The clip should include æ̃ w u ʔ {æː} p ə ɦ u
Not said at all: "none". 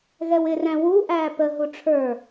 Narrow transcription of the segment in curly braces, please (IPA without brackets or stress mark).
æː